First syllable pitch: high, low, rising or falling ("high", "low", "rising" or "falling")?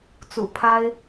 low